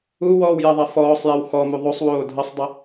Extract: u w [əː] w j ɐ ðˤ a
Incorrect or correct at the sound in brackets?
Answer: incorrect: ɔː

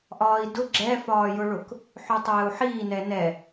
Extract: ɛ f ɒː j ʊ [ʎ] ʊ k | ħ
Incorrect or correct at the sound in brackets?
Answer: incorrect: ɭ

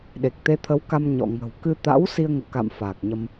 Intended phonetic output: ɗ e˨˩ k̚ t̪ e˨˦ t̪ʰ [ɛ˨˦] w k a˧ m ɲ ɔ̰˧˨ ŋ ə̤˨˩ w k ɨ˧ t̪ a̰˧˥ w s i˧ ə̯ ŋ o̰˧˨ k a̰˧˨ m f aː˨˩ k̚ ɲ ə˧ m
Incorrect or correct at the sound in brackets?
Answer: incorrect: ə˨˦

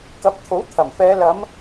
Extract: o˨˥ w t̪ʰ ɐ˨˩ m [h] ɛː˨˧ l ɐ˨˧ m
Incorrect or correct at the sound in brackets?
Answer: incorrect: f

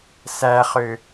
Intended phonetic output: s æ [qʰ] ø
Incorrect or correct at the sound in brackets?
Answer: incorrect: χ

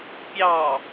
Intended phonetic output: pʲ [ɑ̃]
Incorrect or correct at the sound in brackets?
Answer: incorrect: ɑ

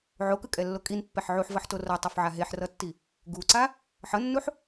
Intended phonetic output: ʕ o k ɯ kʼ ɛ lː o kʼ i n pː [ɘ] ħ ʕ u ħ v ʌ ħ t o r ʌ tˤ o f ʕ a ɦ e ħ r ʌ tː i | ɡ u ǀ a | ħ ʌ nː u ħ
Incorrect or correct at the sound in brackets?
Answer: incorrect: ɛ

